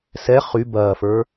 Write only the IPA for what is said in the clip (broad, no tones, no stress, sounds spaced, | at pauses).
s ɛ χ y b ɐː f ə˞